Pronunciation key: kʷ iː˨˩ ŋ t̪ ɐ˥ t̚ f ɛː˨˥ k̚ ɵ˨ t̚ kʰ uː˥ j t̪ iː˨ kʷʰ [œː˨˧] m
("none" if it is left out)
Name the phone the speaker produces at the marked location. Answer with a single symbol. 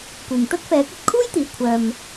œː˧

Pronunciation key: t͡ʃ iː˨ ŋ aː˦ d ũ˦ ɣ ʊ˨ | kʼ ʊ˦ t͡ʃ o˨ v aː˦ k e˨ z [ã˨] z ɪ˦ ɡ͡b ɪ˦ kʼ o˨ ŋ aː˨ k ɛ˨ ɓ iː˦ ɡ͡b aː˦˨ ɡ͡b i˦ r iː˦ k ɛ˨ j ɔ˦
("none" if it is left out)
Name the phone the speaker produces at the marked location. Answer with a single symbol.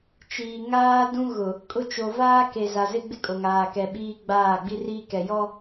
a˨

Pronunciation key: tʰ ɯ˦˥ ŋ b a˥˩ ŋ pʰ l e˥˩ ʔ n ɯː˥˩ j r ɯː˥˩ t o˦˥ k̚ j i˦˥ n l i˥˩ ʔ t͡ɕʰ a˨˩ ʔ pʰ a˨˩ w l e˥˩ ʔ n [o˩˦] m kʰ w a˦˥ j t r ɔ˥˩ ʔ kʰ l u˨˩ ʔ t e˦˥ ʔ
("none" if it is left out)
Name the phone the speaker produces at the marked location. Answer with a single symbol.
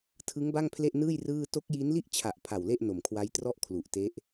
o˨˩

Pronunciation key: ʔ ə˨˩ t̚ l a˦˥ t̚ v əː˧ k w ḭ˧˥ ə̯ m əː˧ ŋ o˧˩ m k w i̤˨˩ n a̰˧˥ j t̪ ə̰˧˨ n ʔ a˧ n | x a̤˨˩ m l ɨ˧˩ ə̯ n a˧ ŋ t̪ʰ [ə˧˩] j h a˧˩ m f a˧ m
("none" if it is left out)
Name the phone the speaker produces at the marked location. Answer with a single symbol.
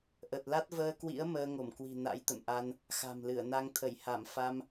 ə˧˩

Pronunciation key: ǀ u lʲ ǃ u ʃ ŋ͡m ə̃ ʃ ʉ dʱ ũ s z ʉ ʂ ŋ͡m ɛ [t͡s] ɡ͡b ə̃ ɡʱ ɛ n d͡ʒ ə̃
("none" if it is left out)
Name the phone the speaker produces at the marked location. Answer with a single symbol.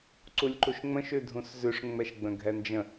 ʃ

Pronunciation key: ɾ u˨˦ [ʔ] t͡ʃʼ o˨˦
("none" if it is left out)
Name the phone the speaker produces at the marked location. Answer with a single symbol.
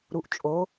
ʔ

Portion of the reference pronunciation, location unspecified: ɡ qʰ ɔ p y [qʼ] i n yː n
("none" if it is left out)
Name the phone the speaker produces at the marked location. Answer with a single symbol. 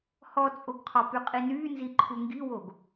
qʼ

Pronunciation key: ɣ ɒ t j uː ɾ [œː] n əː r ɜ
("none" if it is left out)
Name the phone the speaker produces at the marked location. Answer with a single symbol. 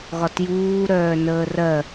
œː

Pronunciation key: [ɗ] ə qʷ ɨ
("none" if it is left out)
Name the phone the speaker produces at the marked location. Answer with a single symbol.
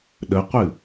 ɗ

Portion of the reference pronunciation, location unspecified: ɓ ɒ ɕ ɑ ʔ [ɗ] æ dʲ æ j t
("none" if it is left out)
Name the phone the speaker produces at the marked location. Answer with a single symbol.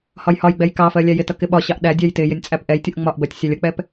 ɗ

